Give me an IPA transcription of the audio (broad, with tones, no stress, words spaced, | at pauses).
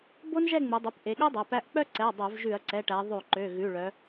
bo˥nʒɛ˥˧ŋ͡mu˩˧ dˤu˩˧˩pʔe˩˧ɠo˥ dˤæ˩˧˩pæ˥˧ʔ k͡pœ˥˧ǀɛ˩˧˩ɐ̯ dˤœ˧˩˧vʒʉ˧˩˧ɐ̯ǀɛ˩˧˩ʈæ˩˧ ðˤʉ˧˩˧ǃø˩˧˩ ɣʉ˩˧˩ɭœ˩˧